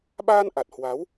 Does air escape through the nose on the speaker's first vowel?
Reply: no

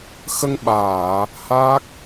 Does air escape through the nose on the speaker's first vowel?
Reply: no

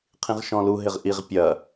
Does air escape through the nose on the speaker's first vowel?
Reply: yes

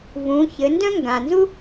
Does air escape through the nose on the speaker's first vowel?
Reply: yes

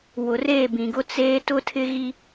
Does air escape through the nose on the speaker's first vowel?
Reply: no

